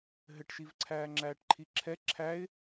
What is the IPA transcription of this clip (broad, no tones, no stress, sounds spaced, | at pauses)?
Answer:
ɦ ɘ ʈ ʃ i v ǀʰ æː ŋ͡ǁ æː ʈ ǃʰ i ǁʰ ɛ ǁʰ æ ɪ̯